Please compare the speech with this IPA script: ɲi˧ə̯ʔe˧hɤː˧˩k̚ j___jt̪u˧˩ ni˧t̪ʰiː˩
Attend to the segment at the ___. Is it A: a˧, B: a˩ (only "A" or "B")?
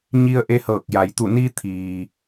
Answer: B